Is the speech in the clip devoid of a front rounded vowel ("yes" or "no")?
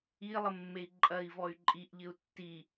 no